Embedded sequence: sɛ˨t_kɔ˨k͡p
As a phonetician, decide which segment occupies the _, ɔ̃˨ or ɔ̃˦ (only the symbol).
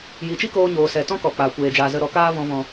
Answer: ɔ̃˦